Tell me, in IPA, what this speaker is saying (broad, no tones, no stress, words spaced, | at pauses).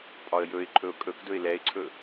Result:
pʼɒə̯jɵɪ̯ǃʰɵʊ̯ kʼɵkdɵɪ̯ lɛɪ̯ǀʰɵ